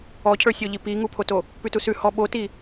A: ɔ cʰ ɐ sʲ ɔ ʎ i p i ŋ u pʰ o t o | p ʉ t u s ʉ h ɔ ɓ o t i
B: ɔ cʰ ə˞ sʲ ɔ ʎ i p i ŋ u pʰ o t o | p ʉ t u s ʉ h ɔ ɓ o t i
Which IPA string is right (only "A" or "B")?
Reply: B